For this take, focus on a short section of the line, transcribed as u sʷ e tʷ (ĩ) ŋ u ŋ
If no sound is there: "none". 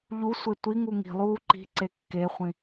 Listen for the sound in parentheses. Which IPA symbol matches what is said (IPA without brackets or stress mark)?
i